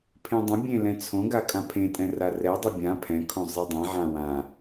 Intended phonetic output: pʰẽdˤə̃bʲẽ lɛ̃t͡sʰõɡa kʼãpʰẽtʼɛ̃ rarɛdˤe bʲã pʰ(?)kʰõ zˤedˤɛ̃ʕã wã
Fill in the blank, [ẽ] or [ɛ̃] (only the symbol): ɛ̃